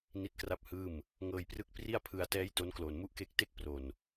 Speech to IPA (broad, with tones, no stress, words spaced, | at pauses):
ni˦˥t̚kra˥˩p̚hɯː˥˩m | ŋɤː˧jprɯ˦˥k̚ pri˥˩a̯ pʰɯ˧a̯tɛː˦˥j to˦˥nkloː˨˩nmu˥˩ʔke˦˥k̚ te˥˩k̚pro˨˩n